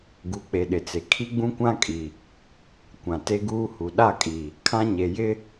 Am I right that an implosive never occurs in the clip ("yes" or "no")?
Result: no